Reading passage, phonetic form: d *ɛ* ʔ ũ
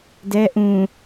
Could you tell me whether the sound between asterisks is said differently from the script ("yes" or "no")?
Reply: no